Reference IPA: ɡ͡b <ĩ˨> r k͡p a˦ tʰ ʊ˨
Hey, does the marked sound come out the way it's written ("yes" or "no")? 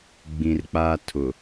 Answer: yes